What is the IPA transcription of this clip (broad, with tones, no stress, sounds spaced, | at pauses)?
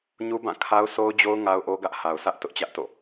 ɲ u˦ b ã˦˨ kʰ a˦ ʊ̯ s o˦ ʊ̯ d͡ʑ o˦ ʊ̯ ŋ a˦ ʊ̯ ʔ o˦ ɡ ä˦ ʔ h a˨ ʊ̯ sʰ ä˦ ʔ t ʊ˦ ʔ t͡ɕ ä˦ ʔ t o̰˦˨